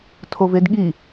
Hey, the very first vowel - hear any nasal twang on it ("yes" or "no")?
no